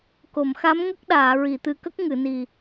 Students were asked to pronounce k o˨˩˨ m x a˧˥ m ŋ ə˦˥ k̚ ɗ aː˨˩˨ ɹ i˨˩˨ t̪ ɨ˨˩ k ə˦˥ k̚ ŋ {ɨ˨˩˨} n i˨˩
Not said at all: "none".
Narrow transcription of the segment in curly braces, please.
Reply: ɨ˨˩˨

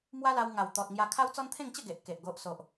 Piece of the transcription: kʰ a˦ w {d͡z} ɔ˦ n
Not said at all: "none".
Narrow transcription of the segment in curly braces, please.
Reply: t͡s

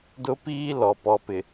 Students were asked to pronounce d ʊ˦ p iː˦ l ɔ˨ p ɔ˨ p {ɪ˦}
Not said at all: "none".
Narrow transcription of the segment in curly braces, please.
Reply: ɪ˨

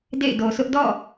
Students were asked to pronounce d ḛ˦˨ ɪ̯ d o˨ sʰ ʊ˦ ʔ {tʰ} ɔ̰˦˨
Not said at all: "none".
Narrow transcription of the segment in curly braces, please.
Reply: d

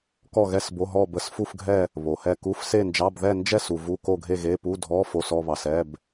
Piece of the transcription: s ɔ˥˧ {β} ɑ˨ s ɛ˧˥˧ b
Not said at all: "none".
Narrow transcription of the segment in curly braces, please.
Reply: β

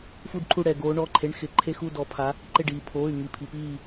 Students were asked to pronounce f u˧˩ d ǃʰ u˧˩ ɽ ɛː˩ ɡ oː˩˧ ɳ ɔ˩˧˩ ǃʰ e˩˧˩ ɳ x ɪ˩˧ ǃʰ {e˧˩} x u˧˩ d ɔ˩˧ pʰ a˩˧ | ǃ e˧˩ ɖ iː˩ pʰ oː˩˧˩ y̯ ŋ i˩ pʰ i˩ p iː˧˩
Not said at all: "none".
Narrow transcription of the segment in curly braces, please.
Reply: e˧˩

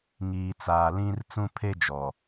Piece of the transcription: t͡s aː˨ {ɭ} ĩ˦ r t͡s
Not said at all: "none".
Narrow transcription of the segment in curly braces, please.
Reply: l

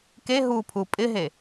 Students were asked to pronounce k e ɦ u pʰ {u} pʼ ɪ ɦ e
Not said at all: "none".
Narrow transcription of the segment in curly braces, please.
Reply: u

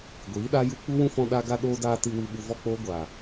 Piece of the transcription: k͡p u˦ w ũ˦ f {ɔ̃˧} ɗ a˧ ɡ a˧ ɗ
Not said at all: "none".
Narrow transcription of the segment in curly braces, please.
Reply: ɔ̃˧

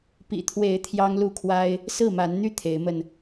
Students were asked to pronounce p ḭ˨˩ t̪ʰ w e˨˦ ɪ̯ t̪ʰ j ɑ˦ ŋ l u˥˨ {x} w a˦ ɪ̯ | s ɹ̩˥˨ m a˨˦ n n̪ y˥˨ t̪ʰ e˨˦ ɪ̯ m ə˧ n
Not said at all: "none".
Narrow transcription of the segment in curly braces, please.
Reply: kʰ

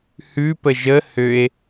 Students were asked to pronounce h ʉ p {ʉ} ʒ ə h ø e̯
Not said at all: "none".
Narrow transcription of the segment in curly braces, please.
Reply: ə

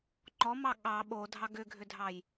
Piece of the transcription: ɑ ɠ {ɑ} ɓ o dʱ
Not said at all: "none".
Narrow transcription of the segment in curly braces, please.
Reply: ɑ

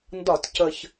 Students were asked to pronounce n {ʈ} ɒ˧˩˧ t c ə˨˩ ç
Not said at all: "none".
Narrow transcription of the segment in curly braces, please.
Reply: d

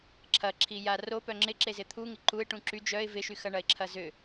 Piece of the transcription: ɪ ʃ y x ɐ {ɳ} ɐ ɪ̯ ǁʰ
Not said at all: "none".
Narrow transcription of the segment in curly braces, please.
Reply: ɳ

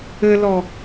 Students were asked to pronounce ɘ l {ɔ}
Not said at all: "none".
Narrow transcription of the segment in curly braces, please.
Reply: ɔ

